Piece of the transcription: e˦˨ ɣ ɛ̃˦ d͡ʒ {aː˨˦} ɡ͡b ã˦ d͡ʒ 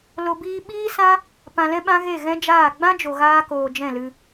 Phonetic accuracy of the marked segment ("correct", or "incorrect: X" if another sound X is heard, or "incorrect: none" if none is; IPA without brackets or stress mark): incorrect: aː˦˨